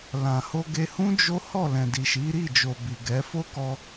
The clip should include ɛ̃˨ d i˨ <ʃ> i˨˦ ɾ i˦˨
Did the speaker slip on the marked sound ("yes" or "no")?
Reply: no